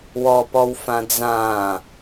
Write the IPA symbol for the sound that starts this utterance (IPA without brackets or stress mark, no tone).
w